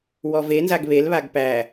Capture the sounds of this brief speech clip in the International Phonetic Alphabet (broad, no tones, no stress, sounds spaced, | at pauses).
w ɔ v e n z a ɡ β e l β a ɡ p æ